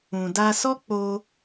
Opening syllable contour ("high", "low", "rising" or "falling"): low